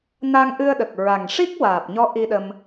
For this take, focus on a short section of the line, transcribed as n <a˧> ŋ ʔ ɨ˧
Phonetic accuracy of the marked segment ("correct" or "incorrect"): correct